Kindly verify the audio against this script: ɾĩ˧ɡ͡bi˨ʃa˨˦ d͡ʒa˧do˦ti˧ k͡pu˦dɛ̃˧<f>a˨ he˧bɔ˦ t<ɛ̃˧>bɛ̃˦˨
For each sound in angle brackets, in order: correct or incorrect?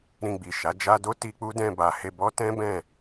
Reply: incorrect, incorrect

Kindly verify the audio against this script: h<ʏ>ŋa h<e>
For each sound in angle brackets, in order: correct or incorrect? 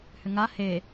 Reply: correct, correct

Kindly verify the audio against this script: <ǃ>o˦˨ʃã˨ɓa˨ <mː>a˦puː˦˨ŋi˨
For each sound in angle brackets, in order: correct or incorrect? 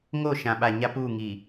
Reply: incorrect, incorrect

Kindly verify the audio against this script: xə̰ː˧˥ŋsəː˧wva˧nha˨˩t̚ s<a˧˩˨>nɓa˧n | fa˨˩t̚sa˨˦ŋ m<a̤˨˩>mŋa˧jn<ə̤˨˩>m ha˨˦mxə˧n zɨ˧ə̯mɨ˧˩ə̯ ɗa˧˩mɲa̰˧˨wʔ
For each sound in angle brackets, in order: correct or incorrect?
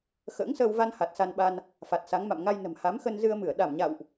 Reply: incorrect, incorrect, correct

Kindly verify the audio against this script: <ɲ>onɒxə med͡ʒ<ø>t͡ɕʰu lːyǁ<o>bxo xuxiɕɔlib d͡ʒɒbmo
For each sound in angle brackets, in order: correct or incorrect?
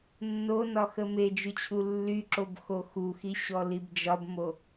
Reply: incorrect, incorrect, correct

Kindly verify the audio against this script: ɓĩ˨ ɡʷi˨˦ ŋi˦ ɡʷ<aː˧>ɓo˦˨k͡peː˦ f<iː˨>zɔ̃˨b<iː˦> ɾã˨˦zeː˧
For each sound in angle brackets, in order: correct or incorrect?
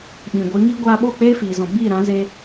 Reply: correct, correct, incorrect

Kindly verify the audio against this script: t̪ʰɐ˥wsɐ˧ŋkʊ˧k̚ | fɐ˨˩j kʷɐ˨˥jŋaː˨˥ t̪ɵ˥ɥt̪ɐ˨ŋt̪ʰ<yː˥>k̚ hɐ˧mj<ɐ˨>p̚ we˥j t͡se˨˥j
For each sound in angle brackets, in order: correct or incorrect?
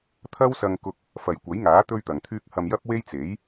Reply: correct, incorrect

